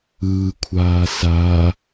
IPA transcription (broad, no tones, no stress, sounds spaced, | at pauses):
ɯː kʷʰ aː s a